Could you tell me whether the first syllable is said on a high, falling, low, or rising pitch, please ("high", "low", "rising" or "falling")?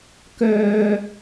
high